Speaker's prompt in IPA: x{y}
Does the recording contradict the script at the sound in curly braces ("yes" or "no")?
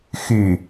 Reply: no